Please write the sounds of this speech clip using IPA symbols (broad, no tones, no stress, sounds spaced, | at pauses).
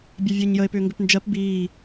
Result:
bʲ ɜ vʲ əː ɲ j ə e̯ p ʏː ŋ ɡ ʏ p n d͡ʒ ɜ p b iː